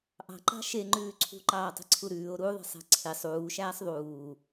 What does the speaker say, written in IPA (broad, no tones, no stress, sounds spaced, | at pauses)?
ʔ ɑ̤ ǃ ɑ̤ ʃ e ŋ͡ǃ ʉː ǀʰ ṳ ǃ ɑː tˤ e̤ ǀʰ u ɾ ʉː o̯ ɾ u ðˤ e̤ sˤ æ̤ ǀʰ e sˤ uː ʃ æː sˤ ðˤ uː